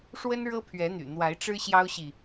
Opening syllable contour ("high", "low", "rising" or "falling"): high